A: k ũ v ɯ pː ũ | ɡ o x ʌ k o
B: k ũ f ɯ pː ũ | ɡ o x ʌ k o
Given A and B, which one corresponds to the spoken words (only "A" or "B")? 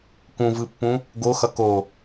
A